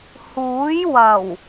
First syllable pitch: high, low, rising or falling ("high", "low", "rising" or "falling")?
rising